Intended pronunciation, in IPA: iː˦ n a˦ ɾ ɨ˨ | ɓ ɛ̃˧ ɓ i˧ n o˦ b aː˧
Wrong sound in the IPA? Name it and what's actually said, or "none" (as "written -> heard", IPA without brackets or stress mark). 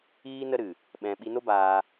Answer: a˦ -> ə˦